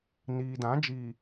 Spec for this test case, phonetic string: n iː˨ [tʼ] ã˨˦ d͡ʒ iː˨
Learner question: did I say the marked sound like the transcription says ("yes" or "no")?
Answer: no